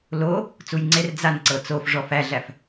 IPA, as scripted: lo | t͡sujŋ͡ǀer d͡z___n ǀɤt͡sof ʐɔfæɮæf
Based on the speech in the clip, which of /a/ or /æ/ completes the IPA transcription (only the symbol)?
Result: a